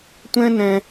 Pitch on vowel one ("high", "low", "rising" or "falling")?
high